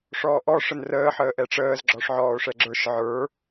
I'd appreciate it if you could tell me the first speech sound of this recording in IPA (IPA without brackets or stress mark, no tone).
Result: ʂ